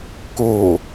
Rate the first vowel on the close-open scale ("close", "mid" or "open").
mid